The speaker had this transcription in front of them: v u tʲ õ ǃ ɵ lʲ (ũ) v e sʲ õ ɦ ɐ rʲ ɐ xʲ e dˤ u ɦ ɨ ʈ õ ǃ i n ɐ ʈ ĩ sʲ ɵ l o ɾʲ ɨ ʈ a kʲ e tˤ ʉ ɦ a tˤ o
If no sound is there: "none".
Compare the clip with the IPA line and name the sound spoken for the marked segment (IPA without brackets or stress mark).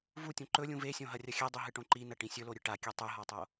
ũ